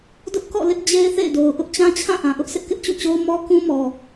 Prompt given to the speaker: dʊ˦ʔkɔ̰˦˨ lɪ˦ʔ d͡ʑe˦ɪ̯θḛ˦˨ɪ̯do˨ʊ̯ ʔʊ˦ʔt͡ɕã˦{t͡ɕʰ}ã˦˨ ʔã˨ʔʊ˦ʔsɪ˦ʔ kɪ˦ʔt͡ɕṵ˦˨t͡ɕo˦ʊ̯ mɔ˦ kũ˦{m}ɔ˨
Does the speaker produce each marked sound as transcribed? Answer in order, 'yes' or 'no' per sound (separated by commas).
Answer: yes, yes